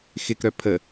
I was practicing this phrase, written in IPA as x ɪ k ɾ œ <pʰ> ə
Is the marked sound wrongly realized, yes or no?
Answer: no